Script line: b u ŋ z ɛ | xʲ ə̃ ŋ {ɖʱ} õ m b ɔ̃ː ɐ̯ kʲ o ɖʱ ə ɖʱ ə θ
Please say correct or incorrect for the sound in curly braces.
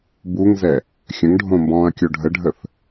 correct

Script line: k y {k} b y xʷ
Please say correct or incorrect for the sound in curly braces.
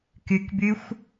correct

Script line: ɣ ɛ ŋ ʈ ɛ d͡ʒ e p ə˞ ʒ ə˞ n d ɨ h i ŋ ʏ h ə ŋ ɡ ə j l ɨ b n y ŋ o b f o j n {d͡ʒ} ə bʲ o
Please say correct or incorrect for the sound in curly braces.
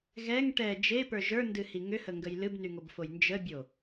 correct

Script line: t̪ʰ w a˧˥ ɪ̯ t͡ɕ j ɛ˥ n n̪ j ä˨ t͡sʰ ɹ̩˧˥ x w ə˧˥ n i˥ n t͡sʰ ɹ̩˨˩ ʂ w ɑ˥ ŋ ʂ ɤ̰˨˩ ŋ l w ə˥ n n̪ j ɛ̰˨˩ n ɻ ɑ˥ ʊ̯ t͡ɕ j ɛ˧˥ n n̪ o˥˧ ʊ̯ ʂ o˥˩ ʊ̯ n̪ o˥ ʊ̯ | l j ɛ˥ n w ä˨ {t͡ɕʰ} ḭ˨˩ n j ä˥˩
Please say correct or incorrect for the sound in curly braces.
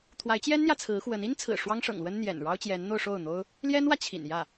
correct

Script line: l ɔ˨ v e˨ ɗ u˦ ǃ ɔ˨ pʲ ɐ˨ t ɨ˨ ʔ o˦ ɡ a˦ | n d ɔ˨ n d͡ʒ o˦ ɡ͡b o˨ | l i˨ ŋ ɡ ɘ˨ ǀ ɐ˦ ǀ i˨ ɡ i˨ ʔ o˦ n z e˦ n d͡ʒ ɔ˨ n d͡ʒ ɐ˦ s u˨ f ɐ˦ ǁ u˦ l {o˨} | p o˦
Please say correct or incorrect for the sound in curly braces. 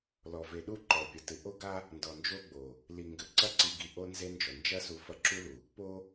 incorrect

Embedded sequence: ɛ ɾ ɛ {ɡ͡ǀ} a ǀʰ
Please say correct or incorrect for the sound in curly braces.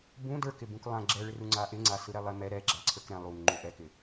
incorrect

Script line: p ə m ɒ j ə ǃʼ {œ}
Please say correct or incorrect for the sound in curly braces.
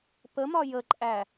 incorrect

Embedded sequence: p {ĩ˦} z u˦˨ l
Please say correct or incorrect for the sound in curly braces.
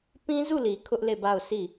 correct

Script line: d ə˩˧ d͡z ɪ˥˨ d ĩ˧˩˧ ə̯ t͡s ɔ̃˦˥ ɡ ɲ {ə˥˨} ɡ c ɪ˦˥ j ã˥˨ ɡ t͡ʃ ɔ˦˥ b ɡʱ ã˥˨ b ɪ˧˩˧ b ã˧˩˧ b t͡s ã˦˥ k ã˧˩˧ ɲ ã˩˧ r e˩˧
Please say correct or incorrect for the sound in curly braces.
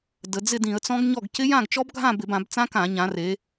incorrect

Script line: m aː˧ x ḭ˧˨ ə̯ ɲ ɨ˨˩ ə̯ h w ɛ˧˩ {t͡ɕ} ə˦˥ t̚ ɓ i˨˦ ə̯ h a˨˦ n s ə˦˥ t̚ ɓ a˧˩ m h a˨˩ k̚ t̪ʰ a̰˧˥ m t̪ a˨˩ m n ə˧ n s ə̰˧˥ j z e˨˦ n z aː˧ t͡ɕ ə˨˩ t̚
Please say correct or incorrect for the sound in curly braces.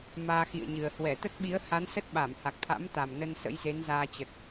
incorrect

